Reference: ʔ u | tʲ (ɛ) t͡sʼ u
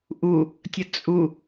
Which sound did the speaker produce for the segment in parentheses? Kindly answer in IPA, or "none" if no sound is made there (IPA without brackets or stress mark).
ə